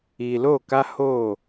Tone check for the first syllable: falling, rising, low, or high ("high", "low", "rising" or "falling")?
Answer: low